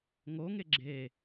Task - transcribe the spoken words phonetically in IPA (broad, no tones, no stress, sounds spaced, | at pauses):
ŋ o ŋ e ɡ͡ǁ e